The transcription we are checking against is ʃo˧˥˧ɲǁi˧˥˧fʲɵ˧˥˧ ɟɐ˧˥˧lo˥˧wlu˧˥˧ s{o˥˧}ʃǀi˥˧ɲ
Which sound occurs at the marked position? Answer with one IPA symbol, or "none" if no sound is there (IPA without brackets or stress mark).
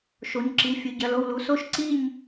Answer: o˥˧